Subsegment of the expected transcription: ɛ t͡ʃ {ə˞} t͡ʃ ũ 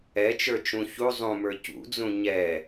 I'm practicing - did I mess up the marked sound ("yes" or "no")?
no